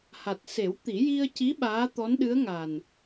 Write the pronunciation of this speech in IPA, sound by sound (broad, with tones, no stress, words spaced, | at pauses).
ha˨˩t̚ se˨˩˦wt̪i˨˩˦ji˧ə̯ci˧˥ ɓaː˧˥t̪ɔ˧˥nɗɨ˧˥ə̯ŋaː˨˩n